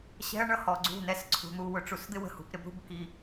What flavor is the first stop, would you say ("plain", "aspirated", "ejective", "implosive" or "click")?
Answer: click